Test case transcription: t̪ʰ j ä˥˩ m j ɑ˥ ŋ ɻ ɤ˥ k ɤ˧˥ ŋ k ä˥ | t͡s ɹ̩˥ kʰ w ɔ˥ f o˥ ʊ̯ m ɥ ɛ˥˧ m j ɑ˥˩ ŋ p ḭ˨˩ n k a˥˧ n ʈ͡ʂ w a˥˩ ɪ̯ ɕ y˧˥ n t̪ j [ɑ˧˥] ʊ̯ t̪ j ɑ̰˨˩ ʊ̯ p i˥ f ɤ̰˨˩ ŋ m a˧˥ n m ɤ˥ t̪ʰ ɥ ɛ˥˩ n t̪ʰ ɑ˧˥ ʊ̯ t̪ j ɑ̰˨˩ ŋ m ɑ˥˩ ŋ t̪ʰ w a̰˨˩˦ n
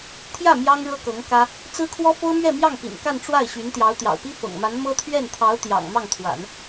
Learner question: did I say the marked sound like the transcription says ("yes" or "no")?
yes